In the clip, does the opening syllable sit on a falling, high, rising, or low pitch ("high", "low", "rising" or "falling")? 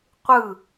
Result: falling